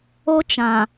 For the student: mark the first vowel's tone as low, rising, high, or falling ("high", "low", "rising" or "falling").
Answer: high